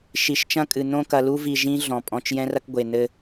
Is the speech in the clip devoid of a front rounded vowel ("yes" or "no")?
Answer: yes